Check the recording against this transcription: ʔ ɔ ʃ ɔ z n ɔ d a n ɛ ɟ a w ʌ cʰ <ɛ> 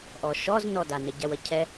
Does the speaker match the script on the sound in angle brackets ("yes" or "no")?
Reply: yes